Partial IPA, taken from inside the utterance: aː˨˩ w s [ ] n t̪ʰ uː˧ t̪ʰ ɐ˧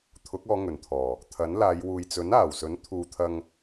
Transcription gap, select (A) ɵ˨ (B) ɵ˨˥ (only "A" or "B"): B